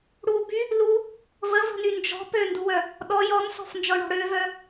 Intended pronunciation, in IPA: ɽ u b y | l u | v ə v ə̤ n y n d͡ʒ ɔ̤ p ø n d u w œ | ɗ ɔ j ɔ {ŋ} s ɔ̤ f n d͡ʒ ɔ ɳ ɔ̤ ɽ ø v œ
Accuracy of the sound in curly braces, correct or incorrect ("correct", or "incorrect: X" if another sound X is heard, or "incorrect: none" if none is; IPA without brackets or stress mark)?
incorrect: n